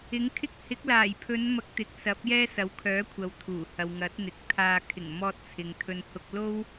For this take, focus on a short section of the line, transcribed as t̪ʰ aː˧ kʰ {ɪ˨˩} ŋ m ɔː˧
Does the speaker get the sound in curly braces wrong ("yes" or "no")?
no